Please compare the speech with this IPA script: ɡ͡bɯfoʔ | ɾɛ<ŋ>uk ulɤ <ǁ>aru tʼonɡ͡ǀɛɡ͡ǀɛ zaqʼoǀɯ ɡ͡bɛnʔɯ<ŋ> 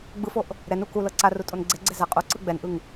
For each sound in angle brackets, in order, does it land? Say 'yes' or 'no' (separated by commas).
no, no, yes